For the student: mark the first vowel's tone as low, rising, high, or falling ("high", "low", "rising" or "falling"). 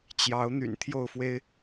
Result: rising